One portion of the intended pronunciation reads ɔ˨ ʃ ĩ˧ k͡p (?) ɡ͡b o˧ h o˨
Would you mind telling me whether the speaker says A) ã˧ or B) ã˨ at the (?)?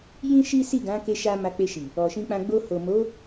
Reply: A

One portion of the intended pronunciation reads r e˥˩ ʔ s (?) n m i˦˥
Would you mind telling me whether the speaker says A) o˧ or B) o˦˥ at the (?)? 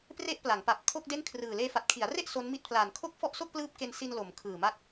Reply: B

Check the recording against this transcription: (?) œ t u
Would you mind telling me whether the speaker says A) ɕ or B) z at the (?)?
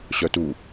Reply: A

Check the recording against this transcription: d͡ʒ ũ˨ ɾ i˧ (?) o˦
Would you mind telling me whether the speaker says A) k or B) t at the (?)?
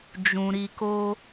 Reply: A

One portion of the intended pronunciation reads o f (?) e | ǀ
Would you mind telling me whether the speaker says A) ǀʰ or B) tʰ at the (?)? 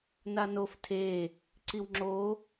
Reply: B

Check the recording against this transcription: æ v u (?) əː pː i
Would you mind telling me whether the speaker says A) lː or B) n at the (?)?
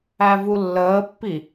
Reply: A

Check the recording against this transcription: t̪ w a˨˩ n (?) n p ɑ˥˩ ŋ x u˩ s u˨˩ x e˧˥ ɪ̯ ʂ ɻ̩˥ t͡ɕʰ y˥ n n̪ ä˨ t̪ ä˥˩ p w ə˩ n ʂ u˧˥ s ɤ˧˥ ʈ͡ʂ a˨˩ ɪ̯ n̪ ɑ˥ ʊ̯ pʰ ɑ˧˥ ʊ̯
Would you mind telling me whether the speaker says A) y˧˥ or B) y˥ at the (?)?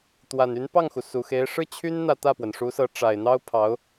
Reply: A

